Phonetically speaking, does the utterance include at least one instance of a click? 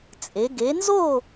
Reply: no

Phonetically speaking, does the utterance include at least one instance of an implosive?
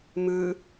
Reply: no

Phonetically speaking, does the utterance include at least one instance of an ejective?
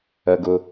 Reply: no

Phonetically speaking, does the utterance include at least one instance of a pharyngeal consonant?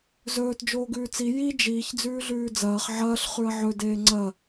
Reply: yes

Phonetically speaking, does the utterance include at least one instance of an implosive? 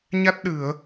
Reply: yes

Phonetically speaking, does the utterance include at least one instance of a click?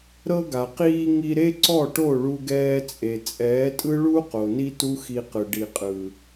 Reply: yes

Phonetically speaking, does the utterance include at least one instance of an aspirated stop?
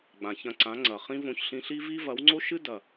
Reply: no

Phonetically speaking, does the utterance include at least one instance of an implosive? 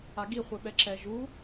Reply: yes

